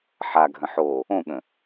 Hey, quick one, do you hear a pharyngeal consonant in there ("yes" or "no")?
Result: yes